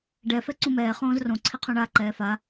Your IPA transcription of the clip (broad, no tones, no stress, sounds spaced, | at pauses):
ɖ ɛ f ɛ ǀ ũ m ɛː χ õː z r õ ǀʰ i qʰ ũ ɳ a ǃ ɛː f a